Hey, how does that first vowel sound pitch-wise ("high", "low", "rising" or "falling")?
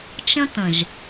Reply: high